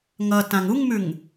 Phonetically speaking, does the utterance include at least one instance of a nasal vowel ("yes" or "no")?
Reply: yes